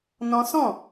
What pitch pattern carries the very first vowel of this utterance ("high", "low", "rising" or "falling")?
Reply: high